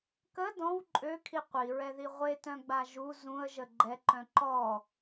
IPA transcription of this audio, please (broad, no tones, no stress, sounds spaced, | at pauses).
k ə d ɔ̃ w ǃʼ ø kʰ i qʷ i ɹ ɛ ð i ʁʷ e t œ̃ ɡ͡b a ʒ u z ũ ə̯ ʒ ə ɡ͡ǃ ɛ ǃ œ̃ ǃ ɔ